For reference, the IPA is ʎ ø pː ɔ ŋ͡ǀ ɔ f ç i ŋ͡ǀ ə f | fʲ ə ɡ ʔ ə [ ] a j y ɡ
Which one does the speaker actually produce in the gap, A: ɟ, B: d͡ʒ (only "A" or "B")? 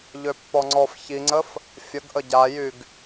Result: A